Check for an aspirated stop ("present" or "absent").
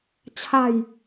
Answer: present